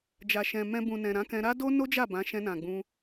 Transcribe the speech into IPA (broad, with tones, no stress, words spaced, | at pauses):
d͡ʒa˨ʃɛ̃˨ mɛ̃˧ bũ˨nɛ̃˨ ɾã˨˦kɛ̃˧ ɾa˦ do˦no˦d͡ʒa˦˨ bã˨˦ ʃɛ̃˧nã˨ɡ͡bũ˧